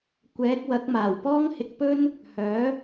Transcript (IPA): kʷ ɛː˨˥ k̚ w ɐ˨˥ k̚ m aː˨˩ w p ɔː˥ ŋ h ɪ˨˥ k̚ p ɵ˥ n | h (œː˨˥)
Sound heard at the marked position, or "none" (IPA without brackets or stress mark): œː˨˥